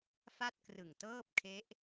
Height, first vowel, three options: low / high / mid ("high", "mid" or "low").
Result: low